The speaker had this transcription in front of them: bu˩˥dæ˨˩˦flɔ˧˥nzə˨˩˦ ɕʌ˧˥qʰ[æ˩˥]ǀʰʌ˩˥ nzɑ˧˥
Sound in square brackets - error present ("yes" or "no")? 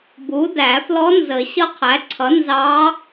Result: no